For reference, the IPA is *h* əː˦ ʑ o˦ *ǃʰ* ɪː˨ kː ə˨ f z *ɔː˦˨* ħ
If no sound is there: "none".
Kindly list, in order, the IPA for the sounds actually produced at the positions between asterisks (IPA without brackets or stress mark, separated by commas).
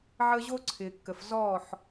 ʕ, ǀʰ, ɔː˦˨